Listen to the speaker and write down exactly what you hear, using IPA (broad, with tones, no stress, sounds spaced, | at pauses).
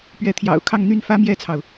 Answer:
p ɥ ɛ˧˥ t̪ʰ j ɑ̰˨˩ ʊ̯ kʰ ɑ˥˧ ŋ n̪ y˥˩ n f ä˥ m j ɛ˥ t͡sʰ ɑ˨ ʊ̯